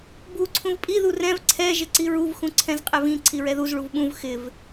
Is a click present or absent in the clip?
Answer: present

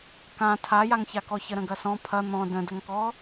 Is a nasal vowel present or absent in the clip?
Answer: present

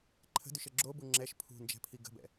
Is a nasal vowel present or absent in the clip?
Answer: absent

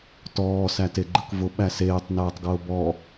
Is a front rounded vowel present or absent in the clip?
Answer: absent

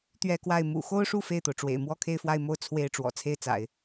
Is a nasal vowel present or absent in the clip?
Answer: absent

